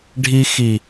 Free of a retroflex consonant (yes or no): no